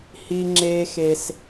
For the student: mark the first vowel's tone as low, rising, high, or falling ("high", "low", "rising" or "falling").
high